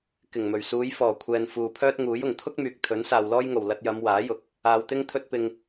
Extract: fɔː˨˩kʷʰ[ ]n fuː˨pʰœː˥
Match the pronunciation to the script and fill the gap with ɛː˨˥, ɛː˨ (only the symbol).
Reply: ɛː˨